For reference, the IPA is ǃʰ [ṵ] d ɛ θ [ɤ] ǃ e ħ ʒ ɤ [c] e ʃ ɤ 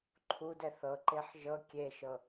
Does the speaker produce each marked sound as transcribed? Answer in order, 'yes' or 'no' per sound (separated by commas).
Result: no, yes, no